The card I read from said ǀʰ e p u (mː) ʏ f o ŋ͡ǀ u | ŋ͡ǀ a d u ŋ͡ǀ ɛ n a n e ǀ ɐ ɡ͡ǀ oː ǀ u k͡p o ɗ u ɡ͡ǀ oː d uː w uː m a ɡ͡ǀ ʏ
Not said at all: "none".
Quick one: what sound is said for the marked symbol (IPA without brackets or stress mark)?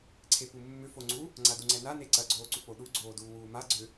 mː